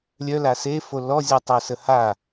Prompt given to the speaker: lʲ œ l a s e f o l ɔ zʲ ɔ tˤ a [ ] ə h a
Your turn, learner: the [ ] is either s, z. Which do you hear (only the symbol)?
s